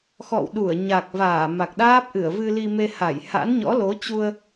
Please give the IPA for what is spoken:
xɔ̰˧˨wɗu˧˩ə̯ ɲa˨˩k̚ vaː˧˩ma˨˩k̚ɗaː˦˥p̚ʔɨ˧˩ə̯ vɨ˧li˧ me˧ha˧˩j ha̰˧˥nɲɔ̰˧˥lo˨˦t͡ɕu˧ə̯

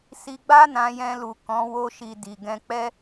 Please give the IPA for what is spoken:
si˧ɡ͡ba˦ nã˧jɛ̃˧ lu˨ kɔ̃˨˦ wo˧ʃi˨ di˨ɡɛ̃˧k͡pɛ˦

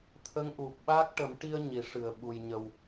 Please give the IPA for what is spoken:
t̪ʰə˧˥ŋʔu˨˩p̚ ɓa˦˥k̚ʈə˨˩˦m ʈi˧ə̯ ɲi˨˩˨ʂɨ˨˩˨ə̯ɓu˨˩j ɲə˨˩w

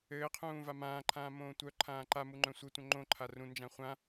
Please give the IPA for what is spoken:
ɘːqʰũː vamãːǃʰãː mõːtʷœǃʰãː ǃamu ŋ͡ǃœ̃sʷɘtʷœ̃ ŋ͡ǃõǃʰa rũnd͡ʒã χʷã

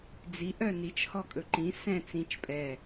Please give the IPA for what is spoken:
d͡zi ʔœnit͡ʃ hɔkʼɵǃĩ sɛ̃ t͡sĩt͡ʃ pʼɛ

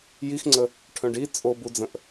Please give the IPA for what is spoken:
jixŋ͡ǀə | ʈʰœ̃ɖi t͡sʼobud͡zə̃ʔ

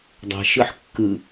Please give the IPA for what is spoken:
dˤɛ̤ʃɯħ kːɯ

